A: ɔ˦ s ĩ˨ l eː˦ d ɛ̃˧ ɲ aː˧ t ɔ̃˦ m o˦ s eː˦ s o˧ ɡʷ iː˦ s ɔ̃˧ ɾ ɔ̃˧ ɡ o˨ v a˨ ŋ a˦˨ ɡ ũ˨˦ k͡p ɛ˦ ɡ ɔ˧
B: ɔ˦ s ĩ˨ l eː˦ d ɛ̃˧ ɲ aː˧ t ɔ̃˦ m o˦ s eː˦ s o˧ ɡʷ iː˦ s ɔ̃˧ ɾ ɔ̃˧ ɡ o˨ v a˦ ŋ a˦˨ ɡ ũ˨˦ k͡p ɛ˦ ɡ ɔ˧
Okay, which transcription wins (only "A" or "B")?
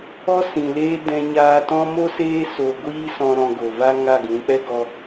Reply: B